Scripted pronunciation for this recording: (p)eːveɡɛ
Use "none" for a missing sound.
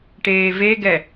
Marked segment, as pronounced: ʈ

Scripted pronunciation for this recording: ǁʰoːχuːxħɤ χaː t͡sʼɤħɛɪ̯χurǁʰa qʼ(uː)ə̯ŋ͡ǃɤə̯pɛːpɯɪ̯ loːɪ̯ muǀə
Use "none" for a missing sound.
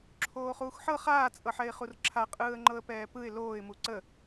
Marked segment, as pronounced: ɯː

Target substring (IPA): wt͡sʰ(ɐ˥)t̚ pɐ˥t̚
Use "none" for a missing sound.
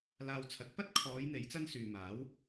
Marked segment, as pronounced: ɐ˨˥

